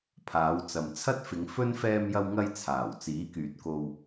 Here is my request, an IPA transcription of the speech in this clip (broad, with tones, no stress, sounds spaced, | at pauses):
pʰ aː˨˧ w t͡s ɐ˨ m t͡sʰ ɐ˥ t̚ f ɪ˨˧ ŋ f ɵ˥ n f ɛː˧ m j ɐ˧ w ŋ ɐ˧ j t͡sʰ aː˨˩ w t͡s iː˨˥ k yː˨ t̚ k o˧ w